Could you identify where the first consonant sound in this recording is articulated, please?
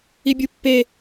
labial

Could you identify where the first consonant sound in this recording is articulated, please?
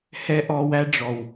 glottal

